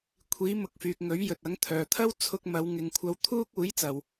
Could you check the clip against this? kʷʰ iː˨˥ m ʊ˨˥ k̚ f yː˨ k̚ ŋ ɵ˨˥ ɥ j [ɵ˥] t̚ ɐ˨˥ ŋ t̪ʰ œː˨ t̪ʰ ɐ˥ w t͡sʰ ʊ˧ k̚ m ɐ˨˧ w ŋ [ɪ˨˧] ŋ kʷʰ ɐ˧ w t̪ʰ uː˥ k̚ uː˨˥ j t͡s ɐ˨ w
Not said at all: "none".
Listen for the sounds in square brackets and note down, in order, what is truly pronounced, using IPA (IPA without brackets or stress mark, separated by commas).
ɵ˨, ɪ˨˧